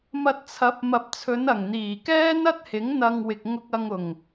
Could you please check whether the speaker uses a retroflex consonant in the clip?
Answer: no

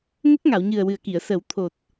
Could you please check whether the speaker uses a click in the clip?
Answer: no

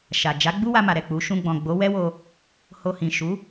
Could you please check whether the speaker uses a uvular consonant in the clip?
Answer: no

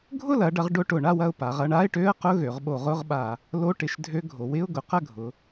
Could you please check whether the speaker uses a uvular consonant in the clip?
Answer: yes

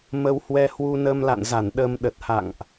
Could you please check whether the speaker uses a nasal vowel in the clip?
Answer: no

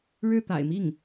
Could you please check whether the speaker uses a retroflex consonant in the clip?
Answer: yes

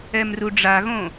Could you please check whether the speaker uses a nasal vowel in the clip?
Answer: yes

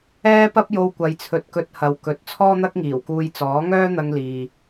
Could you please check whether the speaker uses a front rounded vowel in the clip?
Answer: yes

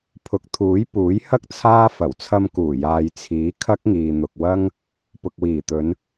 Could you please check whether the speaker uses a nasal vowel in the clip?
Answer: no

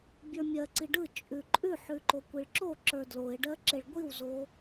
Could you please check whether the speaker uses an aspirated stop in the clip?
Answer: no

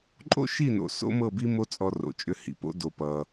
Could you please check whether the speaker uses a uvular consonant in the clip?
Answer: no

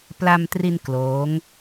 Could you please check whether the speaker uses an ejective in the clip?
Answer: no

